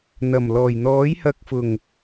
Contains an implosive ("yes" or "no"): no